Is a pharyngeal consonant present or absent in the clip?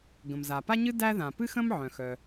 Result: present